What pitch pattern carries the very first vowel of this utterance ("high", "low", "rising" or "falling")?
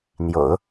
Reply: low